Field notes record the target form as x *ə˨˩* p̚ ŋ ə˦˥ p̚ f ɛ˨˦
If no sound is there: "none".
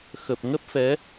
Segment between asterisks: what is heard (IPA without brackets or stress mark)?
ə˨˩